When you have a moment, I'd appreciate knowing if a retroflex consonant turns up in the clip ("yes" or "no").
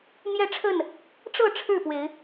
yes